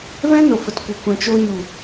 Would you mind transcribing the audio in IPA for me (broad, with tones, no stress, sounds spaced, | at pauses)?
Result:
v ɛ̃˦ n o˨ f ə˨ t kʷ ə˨ kʷ ɛ̃˨ t͡ʃ o˧ ɲ u˨